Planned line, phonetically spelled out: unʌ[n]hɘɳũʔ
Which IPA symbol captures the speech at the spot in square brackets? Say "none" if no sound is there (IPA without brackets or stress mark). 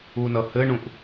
none